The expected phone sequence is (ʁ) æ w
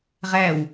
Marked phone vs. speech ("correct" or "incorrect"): correct